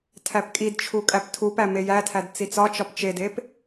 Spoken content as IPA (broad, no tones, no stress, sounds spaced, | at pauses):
tʰ æ p kʼ i d t͡ʃʰ u kʼ æ p tʰ u p æ m e j æ tʰ æ d t͡s i t͡s ɒ t͡ʃ ɒ p t͡ʃ e d e p